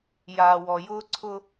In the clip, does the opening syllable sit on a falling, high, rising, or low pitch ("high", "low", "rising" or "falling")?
low